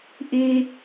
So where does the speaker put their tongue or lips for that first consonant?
throat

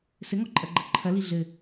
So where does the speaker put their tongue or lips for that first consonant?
tongue tip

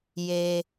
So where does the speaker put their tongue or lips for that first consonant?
palate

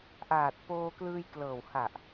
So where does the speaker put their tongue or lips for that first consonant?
throat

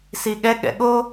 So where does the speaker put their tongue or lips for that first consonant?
tongue tip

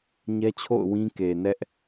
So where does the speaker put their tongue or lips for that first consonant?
palate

